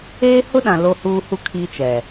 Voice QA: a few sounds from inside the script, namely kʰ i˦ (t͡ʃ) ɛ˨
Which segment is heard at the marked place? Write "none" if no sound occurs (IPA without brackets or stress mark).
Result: t͡ʃ